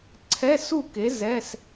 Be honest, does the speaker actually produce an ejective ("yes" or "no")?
no